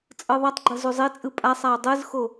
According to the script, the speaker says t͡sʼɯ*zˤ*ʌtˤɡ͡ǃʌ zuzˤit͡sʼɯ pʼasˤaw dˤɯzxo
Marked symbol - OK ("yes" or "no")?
no